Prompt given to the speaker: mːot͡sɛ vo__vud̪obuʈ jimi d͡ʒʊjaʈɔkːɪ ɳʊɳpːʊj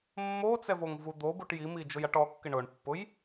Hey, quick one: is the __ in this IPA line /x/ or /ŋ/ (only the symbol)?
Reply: ŋ